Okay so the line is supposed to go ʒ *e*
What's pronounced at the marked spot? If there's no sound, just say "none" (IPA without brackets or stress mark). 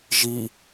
i